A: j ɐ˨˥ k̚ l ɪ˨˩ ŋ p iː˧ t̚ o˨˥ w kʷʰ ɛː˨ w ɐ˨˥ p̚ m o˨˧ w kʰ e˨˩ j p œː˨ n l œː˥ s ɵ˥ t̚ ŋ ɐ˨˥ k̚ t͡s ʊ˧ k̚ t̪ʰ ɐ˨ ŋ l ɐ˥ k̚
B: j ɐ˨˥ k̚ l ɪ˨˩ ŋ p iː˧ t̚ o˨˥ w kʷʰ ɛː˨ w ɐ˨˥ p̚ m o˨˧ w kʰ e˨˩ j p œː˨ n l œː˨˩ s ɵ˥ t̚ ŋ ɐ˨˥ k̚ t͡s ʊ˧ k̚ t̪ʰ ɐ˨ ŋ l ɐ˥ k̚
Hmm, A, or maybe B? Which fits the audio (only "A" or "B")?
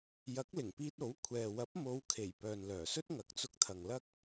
B